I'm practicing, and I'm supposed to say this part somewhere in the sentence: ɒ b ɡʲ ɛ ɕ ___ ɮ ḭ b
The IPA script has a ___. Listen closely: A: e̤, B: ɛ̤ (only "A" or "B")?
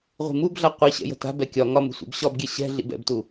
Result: B